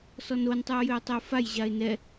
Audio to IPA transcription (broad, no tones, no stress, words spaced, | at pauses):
sɔnontˤʉʊ̯jʏʊ̯ tˤʏʊ̯faj ʑaɪ̯nɛ